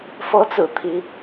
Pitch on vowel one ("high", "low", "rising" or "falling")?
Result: rising